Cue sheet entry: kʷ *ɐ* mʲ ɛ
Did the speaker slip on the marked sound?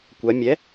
yes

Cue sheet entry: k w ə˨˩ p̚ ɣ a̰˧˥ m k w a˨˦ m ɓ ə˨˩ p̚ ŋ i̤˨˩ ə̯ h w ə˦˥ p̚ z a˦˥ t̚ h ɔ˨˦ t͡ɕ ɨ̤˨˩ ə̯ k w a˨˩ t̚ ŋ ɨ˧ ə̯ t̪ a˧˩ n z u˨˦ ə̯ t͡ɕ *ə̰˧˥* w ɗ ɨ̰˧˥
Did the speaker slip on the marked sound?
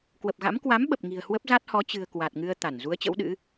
no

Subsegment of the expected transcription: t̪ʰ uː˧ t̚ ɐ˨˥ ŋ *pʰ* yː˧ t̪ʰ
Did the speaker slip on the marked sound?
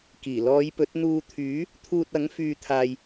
yes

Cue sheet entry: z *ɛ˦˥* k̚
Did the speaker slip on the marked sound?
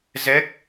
no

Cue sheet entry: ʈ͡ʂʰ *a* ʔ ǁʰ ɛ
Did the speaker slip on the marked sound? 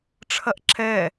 yes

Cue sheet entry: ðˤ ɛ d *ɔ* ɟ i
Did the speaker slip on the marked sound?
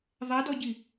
no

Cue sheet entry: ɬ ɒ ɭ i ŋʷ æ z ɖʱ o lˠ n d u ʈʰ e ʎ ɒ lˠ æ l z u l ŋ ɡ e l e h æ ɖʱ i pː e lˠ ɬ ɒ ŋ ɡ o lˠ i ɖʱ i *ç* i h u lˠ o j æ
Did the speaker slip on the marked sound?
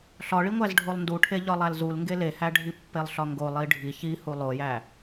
no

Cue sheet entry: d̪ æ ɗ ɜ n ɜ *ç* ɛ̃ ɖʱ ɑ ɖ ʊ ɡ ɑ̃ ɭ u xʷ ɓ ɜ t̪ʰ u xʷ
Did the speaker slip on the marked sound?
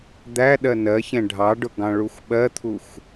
no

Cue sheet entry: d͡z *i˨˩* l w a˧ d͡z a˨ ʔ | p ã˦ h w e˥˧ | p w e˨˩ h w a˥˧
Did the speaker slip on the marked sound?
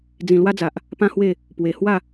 yes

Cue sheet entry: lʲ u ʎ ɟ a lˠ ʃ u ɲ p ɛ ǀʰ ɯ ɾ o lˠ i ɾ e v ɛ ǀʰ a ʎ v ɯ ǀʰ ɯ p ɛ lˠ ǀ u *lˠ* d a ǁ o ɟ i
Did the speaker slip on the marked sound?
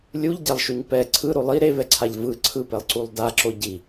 no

